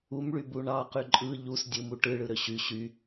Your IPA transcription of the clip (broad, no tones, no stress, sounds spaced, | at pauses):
u m ɭ y b u ɳ ɑ q y ǃʼ ɯ ʎ u s dʲ ɯ m u ʈ ɯ ɭ ɯ ɾ ø ɕ y ɕ y